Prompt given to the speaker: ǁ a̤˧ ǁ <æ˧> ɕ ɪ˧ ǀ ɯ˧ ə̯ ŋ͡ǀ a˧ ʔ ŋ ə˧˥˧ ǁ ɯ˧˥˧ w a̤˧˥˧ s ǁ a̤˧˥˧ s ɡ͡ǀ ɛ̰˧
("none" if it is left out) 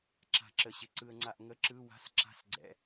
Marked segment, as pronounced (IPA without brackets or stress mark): ə˧